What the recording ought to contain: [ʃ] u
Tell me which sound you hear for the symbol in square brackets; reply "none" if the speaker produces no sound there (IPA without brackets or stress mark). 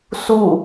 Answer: s